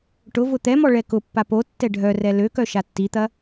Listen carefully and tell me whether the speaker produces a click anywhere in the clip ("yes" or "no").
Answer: no